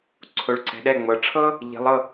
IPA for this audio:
ǀʰo˨˦ɭǀɛ̤˨˦ɗɛ˧˥˧ ŋ͡mɤ˨˦ ʈ͡ʂʰɤ˥ | ʎi̤˨˦lˠɤ˧˥˧

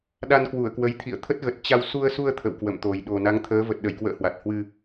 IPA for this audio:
ɗa˧nkwu˧˩ə̯kwə˨˦jt̪ʰḭ˧˨ə̯ t̪ʰə˦˥t̚ɣə˨˩t̚ t͡ɕa˧w su˧ə̯su˧ə̯ t̪ʰə̰˧˨wkwə̰˧˨mt̪o˨˩j ɗo˨˩na˨˦ŋt̪ʰəː˨˦ və˨˩t̚ɗə˧˩jkwə̰ː˧˨ hwa˨˩t̚hwɨ˧

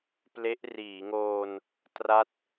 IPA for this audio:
ple˦˥ʔriː˩˦ŋoː˧n | tra˥˩t̚

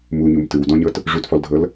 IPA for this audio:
muɲum tɯwdɔ̃ɲɤt | ʐutfɔldʱɤl

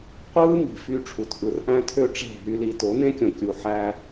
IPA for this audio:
qʷɯː˦mi̤˨fy˧ʈ͡ʂʰu˨t ʔɯ˨rʔæ̃˧tʰø˧ ʈ͡ʂe̤˦˨ɦy˦li˧ to˨˦nẽ˦kʲõ˨ kʲu˧ħæ˦

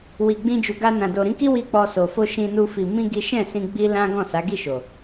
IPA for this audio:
wi˨ ɡ͡bĩ˧d͡ʒu˨ɡa˧nã˨ do˨ɾĩ˨˦ki˦ wi˦k͡pɔ˧ so˨fo˧ ʃĩ˧nu˧ fi˨mĩ˧ ɡi˦ ʃɛ̃˦˨sĩ˧ ɡ͡bi˦lã˦ ɡɔ̃˦˨sa˨˦ ɡi˦˨ʃo˨

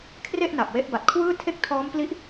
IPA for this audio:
kʰre˥˩ʔna˨˩p̚ we˦˥ʔ ba˨˩t̚kʰwɯː˥˩tʰe˥˩k̚ tʰɔː˦˥mpli˦˥ʔ

